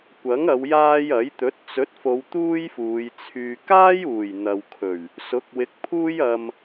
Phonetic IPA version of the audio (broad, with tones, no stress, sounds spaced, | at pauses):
kʷ ɐ˨˥ ŋ ɐ˨˧ w j aː˧ j ɐ˨˥ j t̪ ɵ˨˥ t̚ t͡s ɵ˨˥ t̚ f o˨˧ w t̪ uː˥ j f uː˨˧ j t͡sʰ yː˧ k aː˥ j uː˨˩ j n̪ ɐ˨ w kʰ ɵ˨˩ ɥ | s ʊ˨˥ k̚ w ɪ˨˥ k̚ pʰ uː˧ j ɐ˨ m